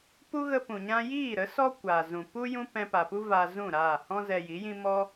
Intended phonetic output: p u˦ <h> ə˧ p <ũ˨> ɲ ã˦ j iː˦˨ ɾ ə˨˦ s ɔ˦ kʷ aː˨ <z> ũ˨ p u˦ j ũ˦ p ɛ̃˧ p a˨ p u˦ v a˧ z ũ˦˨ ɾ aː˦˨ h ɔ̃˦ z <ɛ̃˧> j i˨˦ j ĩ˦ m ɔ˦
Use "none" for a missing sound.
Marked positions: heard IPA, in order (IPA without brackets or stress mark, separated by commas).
ɣ, ũ˨, z, ɛ˧